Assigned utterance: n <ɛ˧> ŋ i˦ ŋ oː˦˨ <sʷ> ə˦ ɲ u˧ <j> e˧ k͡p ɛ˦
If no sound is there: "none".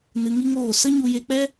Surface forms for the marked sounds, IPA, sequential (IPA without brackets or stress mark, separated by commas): ɨ˧, s, j